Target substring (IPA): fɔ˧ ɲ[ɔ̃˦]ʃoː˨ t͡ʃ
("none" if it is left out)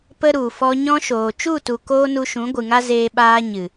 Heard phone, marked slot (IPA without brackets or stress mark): ɔ̃˦